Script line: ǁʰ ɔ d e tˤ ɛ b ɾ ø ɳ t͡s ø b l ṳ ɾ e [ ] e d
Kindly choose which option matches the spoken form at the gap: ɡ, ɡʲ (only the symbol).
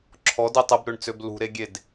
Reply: ɡʲ